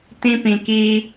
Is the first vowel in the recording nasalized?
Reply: yes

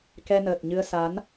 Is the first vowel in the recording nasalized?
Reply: no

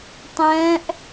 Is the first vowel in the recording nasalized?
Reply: yes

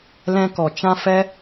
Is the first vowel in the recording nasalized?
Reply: yes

